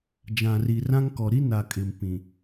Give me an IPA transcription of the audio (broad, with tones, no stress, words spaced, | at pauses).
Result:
d͡ʒã˨ri˨rã˦ŋkɔ˨ ɾi˦na˨ kʼɪ˨mpĩ˨